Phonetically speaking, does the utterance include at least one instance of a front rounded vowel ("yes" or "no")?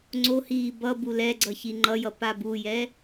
no